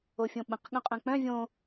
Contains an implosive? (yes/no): yes